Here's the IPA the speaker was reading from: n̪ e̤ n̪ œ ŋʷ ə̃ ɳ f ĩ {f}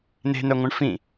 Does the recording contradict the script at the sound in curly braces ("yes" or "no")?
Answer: yes